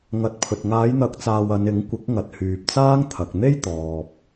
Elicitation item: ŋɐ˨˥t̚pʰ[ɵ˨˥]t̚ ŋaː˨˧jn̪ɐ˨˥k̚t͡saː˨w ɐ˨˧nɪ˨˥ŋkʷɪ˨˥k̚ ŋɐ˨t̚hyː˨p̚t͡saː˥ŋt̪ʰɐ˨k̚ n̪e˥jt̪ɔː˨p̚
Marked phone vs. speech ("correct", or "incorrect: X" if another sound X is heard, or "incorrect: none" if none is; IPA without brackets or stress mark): incorrect: ɵ˨